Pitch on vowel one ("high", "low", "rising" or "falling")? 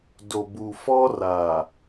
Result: low